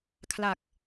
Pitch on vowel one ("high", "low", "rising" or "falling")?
low